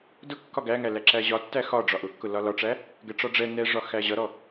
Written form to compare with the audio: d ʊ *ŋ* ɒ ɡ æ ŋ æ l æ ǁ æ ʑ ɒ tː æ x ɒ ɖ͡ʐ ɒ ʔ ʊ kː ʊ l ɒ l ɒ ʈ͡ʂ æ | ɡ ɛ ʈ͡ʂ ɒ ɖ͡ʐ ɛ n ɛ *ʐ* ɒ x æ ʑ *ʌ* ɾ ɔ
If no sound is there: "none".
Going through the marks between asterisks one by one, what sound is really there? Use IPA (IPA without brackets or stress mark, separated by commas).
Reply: kː, ʐ, ʌ